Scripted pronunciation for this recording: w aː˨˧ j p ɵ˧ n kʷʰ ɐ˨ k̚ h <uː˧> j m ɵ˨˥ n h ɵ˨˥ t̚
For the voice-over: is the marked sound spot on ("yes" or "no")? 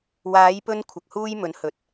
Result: yes